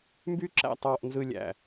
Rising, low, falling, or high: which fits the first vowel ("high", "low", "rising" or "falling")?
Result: high